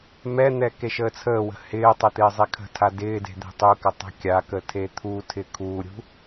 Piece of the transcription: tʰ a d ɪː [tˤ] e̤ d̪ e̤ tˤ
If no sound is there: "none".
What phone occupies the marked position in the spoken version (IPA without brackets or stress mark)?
d